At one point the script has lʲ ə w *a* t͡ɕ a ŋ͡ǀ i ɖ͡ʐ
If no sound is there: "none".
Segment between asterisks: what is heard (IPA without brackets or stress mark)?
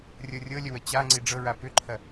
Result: ə